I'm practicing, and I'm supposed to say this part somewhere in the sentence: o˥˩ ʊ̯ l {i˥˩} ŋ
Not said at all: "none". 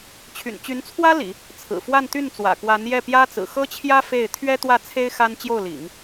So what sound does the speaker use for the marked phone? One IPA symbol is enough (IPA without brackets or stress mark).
ḭ˨˩˦